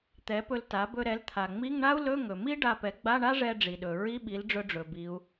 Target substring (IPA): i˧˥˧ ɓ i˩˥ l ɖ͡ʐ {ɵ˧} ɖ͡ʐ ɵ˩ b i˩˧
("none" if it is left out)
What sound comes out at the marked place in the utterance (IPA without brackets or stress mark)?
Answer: ɵ˧